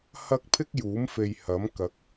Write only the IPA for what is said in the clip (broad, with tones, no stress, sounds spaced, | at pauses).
h ɐ˥ k̚ pʰ ɪ˥ k̚ j uː˨˥ m f e˨ j h ɐ˨˥ m k ɐ˨˥ k̚